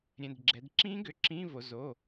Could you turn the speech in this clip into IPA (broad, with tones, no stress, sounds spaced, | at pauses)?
ɾʲ ɛ̃˩˧˩ d ɡ͡ǁ ɛ˩˧ d ǁ ĩː˧˥ ɡ ʏ˩˧˩ ǁ ĩː˧˥˧ v o˩˧ z o˩˧˩